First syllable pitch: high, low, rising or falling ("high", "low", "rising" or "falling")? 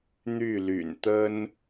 falling